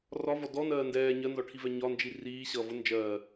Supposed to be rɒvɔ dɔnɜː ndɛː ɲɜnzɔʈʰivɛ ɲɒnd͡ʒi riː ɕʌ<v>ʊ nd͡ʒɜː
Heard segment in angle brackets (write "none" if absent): v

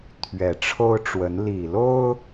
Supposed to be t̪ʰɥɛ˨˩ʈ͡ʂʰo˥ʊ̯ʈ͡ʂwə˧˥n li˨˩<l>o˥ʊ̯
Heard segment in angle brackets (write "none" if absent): l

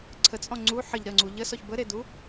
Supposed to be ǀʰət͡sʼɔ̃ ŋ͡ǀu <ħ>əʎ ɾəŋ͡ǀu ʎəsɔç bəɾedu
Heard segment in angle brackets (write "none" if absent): ħ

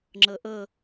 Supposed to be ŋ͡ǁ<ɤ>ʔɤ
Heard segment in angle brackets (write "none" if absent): ɤ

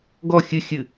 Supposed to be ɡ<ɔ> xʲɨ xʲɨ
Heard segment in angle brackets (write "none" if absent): ɔ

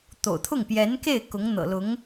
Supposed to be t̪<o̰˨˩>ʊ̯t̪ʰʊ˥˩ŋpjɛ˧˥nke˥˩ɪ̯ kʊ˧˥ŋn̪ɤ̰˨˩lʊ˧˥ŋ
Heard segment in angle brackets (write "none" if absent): o̰˨˩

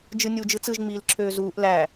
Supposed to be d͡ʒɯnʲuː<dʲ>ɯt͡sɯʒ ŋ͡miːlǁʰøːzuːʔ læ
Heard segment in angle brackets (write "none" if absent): d͡ʒ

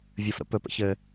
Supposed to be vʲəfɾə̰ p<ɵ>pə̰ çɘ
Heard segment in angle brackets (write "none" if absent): ɵ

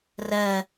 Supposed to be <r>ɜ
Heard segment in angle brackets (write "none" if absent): r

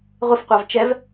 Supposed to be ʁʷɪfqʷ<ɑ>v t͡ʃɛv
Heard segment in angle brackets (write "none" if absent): ɑ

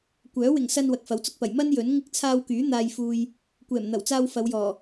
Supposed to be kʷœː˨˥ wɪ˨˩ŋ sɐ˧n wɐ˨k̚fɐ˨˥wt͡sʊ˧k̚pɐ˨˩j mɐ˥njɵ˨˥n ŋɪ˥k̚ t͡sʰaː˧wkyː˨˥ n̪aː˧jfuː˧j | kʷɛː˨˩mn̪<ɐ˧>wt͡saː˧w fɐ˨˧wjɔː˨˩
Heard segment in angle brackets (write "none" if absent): ɐ˨˩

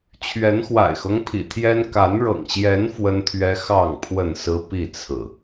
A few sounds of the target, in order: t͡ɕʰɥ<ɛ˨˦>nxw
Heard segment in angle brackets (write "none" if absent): ɛ˨˦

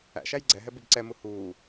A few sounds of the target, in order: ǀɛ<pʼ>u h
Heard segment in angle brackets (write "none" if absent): m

